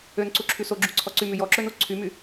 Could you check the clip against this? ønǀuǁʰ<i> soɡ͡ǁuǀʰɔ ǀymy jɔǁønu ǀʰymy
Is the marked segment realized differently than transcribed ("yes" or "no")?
yes